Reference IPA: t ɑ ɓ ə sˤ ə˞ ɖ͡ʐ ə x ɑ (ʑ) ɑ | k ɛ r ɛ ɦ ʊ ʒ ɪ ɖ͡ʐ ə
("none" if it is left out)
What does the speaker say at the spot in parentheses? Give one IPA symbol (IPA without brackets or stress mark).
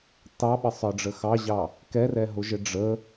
ʑ